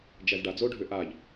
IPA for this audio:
d͡ʒ æ z ɖ a d͡z o ɖʱ ʏ ʔ a ʎ

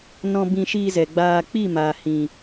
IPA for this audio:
n ɔ̃˧ b ĩ˧ ʃ iː˧ z ɛ˨ ɡ͡b aː˧ k͡p i˦˨ m aː˨ h ĩ˨

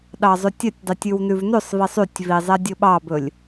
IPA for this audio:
ɗ ɑ zˤ ʉ tʲ œ tʲ dˤ y tʲ ʉ w n ʉ v n ʉ sˤ v i sˤ y tʲ v i zˤ ɛ dʲ ɵ ɓ ɑ b ɵ lʲ

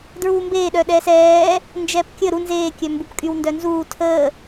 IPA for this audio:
d ɹ uː m b eː ɗ œ ɗ ɛː s ɛː | n d͡ʒ ɛː p kʲ ə ɾ u n z eː kʲ œ m b u p kʼ y w n d œ n z uː tʰ əː

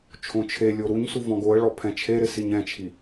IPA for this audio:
t͡ʃʰ õ t͡ʃʰ e lʲ o ɾ u ɲ s u v ɔ̃ ɡ o ə̯ ɭ ɔ pʰ ɛ̃ t͡ʃʰ e ɾ ɪ s i ɲ ɛ̃ t͡ʃʰ i

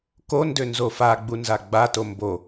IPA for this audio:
k o n d ø n z o f a ɡ͡b u n z a ɡ͡b a t o m b o

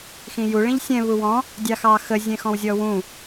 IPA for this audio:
x ĩ j u ɭ ĩ ʎ sʲ ɛ̃ β u w ɔ̃ | dʲ ɑ x ɑ x ə zʲ ɛ̃ x ɔ̃ w zʲ ɔ w ũ

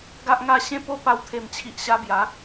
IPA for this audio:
ɡ a˦ ʔ ŋ a˥˧ ɕ ẽ˦ p o˦ p a˧ w t̪ʰ e˨˩ m t͡ɕʰ i˨ ʔ ɕ a˧ b j a˨˦

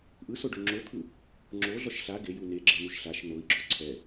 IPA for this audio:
ʔ ɯ s o ɖ o ŋ͡ǁ o t̪ʰ ɯ | ŋ͡ǁ o ɮ ɔ ʃ ɬ a ɡ e j u n e ɡ͡ǁ e n̪ u ʃ ɬ a ʃ n o i̯ ɡ͡ǁ o ǀʰ ɛ

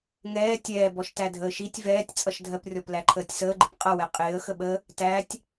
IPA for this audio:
ŋ ɛː tʲ ɛː b ɔ ʃ t æ dʱ əː ʃ i tʲ v ɛː tʲ t͡sʼ ʌ ʃ dʱ ɜ p rʲ ɔ p l æ ǃʰ əː tʲ s əː ɡ͡ǃ ɪ p qʼ ʌ w ɛ qʼ ɪː ə̯ x ə ɓ ə | t æ tʲ

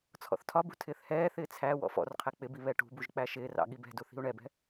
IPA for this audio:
t͡sʰ ɔ̰ θ tʰ ɒ b ṳ tʰ ɪː θ h ɛː θ ɪː t͡sʰ æ w ɔ̰ f ɔ̰ r qʰ ɛ k͡p ɪ b i β ɛ ʈ ṳ b u ʒ k͡p æ ʃ ɪː r ɑ̰ ɠ i b ɛ̤ d u θ i̤ u̯ ɳ ɛ b ɛ̤

